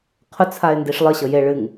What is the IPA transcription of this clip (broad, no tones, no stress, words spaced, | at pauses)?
qʰʊt͡sʰaɪ̯ ndiʂlˠəɕɤ je ɭɨŋ